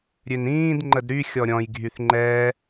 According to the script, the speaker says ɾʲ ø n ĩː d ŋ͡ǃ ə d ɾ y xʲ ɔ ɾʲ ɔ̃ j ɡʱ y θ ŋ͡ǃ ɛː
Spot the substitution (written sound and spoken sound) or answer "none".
none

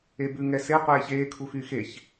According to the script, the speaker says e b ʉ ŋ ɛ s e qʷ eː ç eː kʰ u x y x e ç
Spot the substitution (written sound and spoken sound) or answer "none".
none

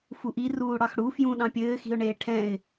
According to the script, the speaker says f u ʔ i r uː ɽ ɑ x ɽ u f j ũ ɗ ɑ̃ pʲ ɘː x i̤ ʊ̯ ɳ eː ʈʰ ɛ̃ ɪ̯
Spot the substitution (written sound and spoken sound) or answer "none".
none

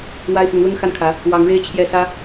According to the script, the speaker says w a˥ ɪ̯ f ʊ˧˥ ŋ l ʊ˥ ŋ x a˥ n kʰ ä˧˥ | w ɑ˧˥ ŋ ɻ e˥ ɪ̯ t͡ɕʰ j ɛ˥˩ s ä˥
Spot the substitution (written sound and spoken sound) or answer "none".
none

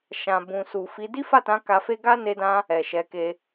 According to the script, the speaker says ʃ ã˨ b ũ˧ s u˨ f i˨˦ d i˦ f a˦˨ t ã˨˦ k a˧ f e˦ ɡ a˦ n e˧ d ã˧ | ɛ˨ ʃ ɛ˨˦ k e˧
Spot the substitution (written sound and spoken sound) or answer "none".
ũ˧ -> ũ˨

